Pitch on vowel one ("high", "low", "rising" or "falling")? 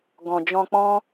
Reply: low